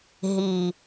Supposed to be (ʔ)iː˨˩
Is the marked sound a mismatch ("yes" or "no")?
yes